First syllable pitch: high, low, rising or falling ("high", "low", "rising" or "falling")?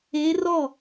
rising